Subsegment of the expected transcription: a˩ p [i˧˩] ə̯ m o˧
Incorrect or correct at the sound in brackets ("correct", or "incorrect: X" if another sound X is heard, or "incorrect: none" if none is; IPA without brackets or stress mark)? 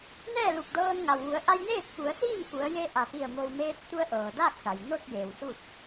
correct